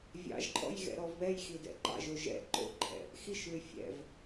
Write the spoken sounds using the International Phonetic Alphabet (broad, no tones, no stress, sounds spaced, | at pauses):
vʲ ɑ̰ ʒ ǃʼ ɔ̰ j ɣ ɛ̰ ɾ ɔ v β ɛ j x i d ɛ̰ ǃ ɑ̰ ʒ o ʒ ɛ̰ ǃ o̰ ǃʰ ɛ̰ | x i ʃ l y fʲ ɛ̰ v